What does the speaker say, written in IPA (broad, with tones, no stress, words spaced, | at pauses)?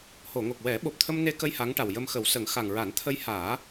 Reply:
ho˨˩˨ŋo˨˩k̚ wɛ˨˩˦ɓo˨˩p̚t̪ʰə˧m ne˧kə˧j ha˧˥ŋʈa˨˩w jə˧mxə˨˩˦wsə˨˩˦ŋ xa˨˩ŋɹa˨˩˦nt̪ʰə˧jhaː˨˩˦